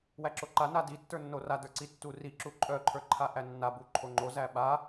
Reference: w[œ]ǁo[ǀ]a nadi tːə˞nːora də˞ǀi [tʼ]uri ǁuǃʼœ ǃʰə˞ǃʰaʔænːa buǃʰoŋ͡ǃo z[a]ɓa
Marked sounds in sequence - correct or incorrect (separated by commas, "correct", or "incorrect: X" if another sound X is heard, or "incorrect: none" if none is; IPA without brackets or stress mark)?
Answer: incorrect: æ, incorrect: ǃ, incorrect: tː, incorrect: æ